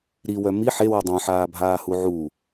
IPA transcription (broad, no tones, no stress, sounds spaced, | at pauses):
ɾ i w œ m i ħ e w œ dˤ œ̃ ħ aː bʱ aː h u ʕ u